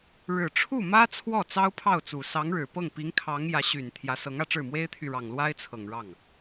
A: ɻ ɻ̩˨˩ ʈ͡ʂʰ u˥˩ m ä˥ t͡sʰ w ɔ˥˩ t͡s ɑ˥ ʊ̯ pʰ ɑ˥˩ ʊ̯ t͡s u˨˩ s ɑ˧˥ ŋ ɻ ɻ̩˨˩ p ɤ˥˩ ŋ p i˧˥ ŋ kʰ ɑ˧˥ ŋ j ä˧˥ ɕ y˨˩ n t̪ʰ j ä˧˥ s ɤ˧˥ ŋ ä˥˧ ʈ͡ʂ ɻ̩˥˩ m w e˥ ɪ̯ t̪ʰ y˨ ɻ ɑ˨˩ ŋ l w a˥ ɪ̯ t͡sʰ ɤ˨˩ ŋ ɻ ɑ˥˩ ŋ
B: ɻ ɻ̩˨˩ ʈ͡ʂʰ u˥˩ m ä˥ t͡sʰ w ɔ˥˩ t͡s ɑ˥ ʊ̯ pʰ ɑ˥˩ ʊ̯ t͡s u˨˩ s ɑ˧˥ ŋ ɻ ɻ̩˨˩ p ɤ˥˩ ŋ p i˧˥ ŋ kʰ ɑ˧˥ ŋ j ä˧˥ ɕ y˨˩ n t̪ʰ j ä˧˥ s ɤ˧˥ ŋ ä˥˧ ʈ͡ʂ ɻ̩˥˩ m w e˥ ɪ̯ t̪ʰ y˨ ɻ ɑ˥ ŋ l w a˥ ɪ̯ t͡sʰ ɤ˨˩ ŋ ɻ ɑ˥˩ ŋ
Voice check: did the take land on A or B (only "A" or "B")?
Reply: A